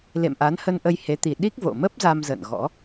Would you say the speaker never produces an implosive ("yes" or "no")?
no